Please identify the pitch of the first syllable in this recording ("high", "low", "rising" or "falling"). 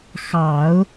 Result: low